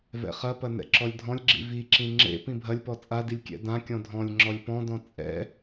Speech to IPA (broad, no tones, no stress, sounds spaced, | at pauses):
v ɛ̰ χ ɐ p ɐ n ɛ̰ ǁ ɔ lʲ dʱ ɔ̃ lʲ ɡ͡ǁ ḭ v i ǁ ĩ ŋ͡ǁ ḛ p ĩ bʱ ɐ lʲ p ɔ t͡sʼ a d i lʲ kʲ ɛ̰ d ã kʲ ɔ̃ dʱ ɔ̃ lʲ ŋ͡ǁ ɔ lʲ p ɔ̃ d ɔ̃ t͡sʼ ɛ̰